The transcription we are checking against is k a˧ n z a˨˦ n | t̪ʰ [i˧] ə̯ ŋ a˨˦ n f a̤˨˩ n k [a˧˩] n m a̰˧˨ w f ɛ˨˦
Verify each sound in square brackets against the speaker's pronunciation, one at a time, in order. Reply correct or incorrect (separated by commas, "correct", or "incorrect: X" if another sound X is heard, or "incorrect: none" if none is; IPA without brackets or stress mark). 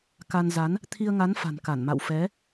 correct, correct